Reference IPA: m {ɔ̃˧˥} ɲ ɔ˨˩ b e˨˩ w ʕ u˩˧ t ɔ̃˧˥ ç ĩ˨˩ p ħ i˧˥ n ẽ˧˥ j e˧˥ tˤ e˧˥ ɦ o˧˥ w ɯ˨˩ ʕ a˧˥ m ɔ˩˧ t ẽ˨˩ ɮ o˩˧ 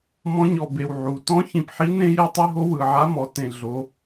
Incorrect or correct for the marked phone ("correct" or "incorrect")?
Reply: correct